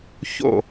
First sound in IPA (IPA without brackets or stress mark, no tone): ç